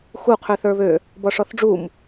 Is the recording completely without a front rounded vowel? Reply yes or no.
no